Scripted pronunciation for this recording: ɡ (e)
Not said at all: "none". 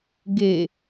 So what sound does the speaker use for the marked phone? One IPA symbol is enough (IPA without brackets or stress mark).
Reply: e